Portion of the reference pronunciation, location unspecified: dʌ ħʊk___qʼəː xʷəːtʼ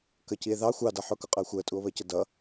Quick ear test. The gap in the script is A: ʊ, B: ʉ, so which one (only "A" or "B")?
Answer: A